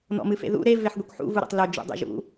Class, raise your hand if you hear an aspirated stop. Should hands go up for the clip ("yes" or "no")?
no